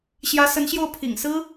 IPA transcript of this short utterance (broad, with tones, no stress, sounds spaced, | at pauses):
ɕ j ä˧˥ s ə˧˥ n ɕ j o˥˩ ʊ̯ pʰ ḭ˨˩ ŋ s ɹ̩˥